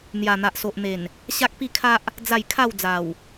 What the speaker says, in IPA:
n̪ j a˨˩ n̪ a˨ ʔ s o˨ ʔ n̪ e˨˩ n | ɕ a˦ k̚ p i˥˧ kʰ a˦ ʔ | d͡z a˥˧ j kʰ a˥˧ w d͡z a˨˩ w

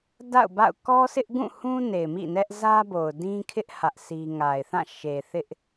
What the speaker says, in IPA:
d a̰˦˨ ʊ̯ b a̰˦˨ ʊ̯ k ɔ˦ sʰ ɪ˦ ʔ ɡ ũ˦˨ h ũ˦ n e˨ ɪ̯ m ḭ˦˨ n ɛ˦ ʔ z ä˦ b o˨ ʊ̯ d ĩ˦ kʰ ɪ˦ ʔ h ä˦ ʔ sʰ i˦ ŋ a˨ ɪ̯ θ ã˦˨ ʃ e˨ θ ɪ˦ ʔ

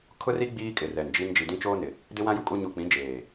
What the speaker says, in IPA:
kʰ ʊ˦ r i˦ ɡ͡b iː˦ kʼ ɪ˨ r ɛ˨ n d͡ʒ i˦ n d͡ʒ i˨ d ĩ˦ t͡ʃ oː˦ n ɪ˨ | d ɪ˦ w ã˦ j u˨ kʼ u˦ ɲ u˨ k͡p ĩ˨˦ d͡ʒ eː˨

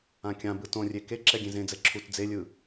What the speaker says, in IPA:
ã kʲ ã b ɯ t õ rʲ e k e ǁ ɛ ɡʲ ẽ z ẽ d͡z ɛ ǁʰ u t d͡z e lʲ ɯ

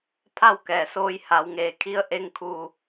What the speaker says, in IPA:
pʰ a˥˨ w k ɛː˩ s oː˧ j h a˩˧ w ŋ eː˩ kʰ i˧˥ ə̯ ʔ e˧ ŋ kʰ u˧˩

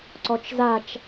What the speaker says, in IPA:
ǀ ɔ t͡ʃ z a t͡ʃ

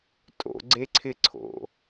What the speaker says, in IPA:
tʼ o̰ ɡ͡ǀ e ǀʰ ɪ ǀʰ o̰

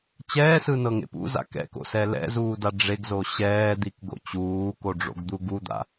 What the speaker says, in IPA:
t͡ɕ ɛː s ɯ n ɤ ŋ ḛ p ṵ z a̰ k ɛ̰ k o̰ s ɛ l ɛ̰ z uː d a ɖ͡ʐ e ɡ z o ɕ ɛː d̪ i k ɡ o̰ t͡ɕ uː k o ɖ͡ʐ o̰ ɡ d̪ u ɡ u d̪ a̰

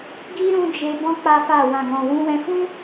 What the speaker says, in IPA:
ɡ i˦ ɾ ũ˦ d͡ʒ e˧ b ɔ̃˦ k͡p a˦ f a˦˨ w ã˨ ɡ ɔ̃˨ w ũ˧ w ɛ̃˧ f ũ˦

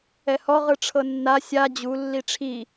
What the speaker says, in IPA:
ɛ h ɔ ʁ ɯ ʈ͡ʂʰ ɤ nː a sʲ a d͡ʑ u lː i ʈ͡ʂʰ i

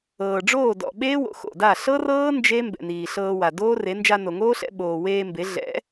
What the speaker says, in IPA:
ɤː˨ ɖ͡ʐ oː˦˨ d ɔ̰˨ ɓ eː˦ w o̰˨ x o̰˨ d a˦˨ ɬ ɤ˦ r ɤː˦ n d͡ʒ e˦ m b ɛ̰˨ n iː˨ ɬ ɤː˧ w a˨ d oː˦ r e˨˦ n d͡ʒ a˧ n o˨ ŋ oː˦ ɬ ɛ̰˧ ɓ oː˨ w eː˧ m b e˨˦ ɮ ɛ̰˨˦

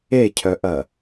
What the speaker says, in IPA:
e cʰ œ ʔ ɐ

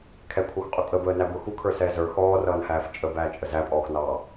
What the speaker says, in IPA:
kʰ ɛ kʷʰ ʌː xʷ qʼ ʊ kʼ ə b əː n æ b ʊ x u kʰ ə˞ s ɛː z ə˞ x ɔː r ʌː n h æː f t͡ʃʼ ə b æː t͡ʃʼ ə z æ pʼ ɔː x n ɑː

